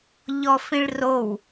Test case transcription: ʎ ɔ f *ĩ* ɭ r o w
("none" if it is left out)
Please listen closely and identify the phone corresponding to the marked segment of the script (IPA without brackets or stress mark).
ĩ